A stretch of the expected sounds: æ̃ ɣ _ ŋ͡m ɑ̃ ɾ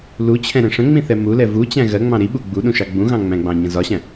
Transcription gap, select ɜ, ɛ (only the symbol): ɜ